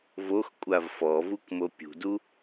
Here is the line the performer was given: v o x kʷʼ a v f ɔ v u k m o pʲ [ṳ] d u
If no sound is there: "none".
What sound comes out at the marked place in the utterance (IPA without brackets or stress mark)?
ṳ